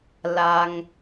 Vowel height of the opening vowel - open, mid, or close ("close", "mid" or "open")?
open